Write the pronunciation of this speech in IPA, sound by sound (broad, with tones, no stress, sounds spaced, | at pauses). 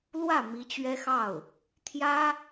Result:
l w ä˥˩ m i˧˥ t͡ɕ ɥ ɛ˥ x ɑ˥˩ ʊ̯ | t̪ʰ j ä˥